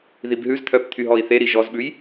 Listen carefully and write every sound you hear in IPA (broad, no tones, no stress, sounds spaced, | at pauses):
ð i b ɦ ʉ z t̪ʰ œ p t̪ʰ y ɦ ɔ i̯ θ e ɾ i ʒ ɔ z ɓ ʉ j